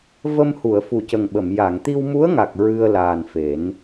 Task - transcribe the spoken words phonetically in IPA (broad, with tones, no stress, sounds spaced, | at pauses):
v ə˧ m h u˨˩˨ ə̯ f u˨˩ c ə˨˩ ŋ ɓ ə˨˩˨ m j a˨˩˨ ŋ t̪ i˧ w m u˧˥ ə̯ ŋ a˨˩ k̚ ɹ ɨ˧ ə̯ l aː˨˩ n f e˨˩˦ n